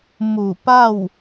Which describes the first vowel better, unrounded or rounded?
rounded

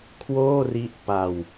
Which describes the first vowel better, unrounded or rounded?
rounded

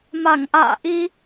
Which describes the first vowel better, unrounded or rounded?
unrounded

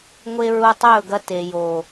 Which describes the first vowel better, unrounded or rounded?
unrounded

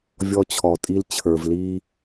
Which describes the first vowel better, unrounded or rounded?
rounded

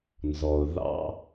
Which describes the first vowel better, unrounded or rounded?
rounded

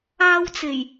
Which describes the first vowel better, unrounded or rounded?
unrounded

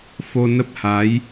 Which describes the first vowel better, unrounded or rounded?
rounded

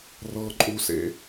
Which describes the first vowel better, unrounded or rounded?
unrounded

